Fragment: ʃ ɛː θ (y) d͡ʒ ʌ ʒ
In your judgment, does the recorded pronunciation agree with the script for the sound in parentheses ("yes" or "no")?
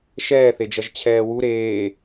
no